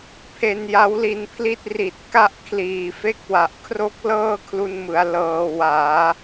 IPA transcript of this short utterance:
pʰe˧nja˦˥w li˧npʰli˥˩t̚ ri˨˩t̚ka˥˩ʔkʰliː˨˩fe˦˥k̚ wa˨˩ʔkʰro˥˩k̚ lɤː˥˩kʰlu˧nmɯ˩˦a̯ lɤː˧ waː˩˦

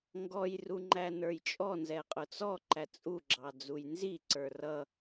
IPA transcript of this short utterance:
ŋɡɔjru ŋ͡ǃænə˞jt͡ʃʼɔnzɛ qʼʊt͡sɔǃæ t͡sʼuɡ͡ǁɑ d͡zujnziǀə˞ rʌ

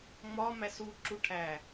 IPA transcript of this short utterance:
ŋ͡mɒ mæsu ǁuʈʰæ

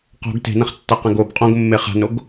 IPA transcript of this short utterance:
qo̤ɡ te̤nɐ̃χtːaqɛ̃ɡ ob qʼõɡmːe χa̤noɡ

